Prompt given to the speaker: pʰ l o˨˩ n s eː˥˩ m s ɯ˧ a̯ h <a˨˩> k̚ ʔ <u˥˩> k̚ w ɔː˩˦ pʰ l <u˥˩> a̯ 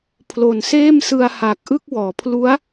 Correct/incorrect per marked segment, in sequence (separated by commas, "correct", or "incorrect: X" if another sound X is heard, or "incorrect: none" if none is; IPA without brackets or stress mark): incorrect: aː˨˩, incorrect: ɯ˥˩, incorrect: u˦˥